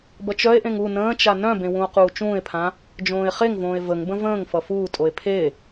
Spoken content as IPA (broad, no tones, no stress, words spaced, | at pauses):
bʌt͡ʃœe̯ʔẽŋ u nə̃ːt͡ʃa nœ̃bẽ wũo̯quːt͡ʃũːe̯pʰã | d͡ʒõːe̯χeŋvõːe̯ vəŋbə̃ və̃ːŋ fʌfuːtʼoe̯ pʰe